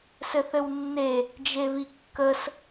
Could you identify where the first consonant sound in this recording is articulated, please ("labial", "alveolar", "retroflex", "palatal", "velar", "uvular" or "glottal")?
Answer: alveolar